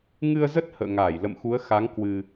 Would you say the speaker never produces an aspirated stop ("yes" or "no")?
yes